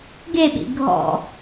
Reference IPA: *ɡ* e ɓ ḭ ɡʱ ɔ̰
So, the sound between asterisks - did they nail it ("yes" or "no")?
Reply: yes